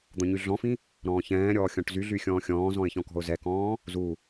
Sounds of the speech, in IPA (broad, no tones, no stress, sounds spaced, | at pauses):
d̪ ɔ̃ ɲ y ɮ ɔ̃ f ĩ | ɾ ɔ̃ː ç ɛ̃ː ɾʲ ɔː xʲ ɔ̃ ʈ z y ɮ y xʲ ɔ̃ː xʲ ɔ̃ː z ɔ̃ ɪ̯ ç ɔ̃ k ɔ̤ ʊ̯ z ɛ k ɔ̃ː | z u